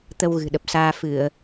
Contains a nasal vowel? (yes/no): no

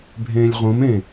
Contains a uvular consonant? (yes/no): yes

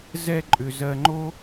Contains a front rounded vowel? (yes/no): yes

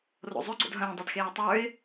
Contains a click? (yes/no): yes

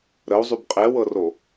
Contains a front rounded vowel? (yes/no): yes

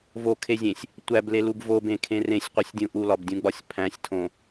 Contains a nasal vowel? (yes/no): yes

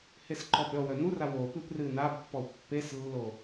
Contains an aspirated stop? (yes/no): no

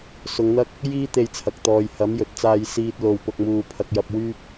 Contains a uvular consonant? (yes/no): no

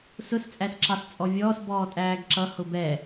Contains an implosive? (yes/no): no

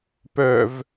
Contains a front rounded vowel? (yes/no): yes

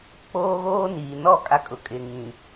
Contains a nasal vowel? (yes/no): yes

